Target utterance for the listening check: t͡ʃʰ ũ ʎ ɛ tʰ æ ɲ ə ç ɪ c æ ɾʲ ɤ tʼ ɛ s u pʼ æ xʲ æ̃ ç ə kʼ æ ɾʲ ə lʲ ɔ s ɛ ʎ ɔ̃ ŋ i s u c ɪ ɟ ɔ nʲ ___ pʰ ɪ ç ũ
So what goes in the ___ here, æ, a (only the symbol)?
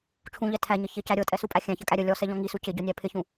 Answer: æ